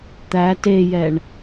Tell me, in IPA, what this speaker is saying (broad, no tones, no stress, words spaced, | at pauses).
t̪æ tejɛɳ